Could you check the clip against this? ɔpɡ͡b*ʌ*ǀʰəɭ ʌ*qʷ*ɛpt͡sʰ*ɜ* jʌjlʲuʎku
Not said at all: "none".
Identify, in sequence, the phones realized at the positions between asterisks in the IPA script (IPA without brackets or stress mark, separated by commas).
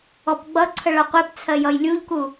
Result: ʌ, qʷ, ɜ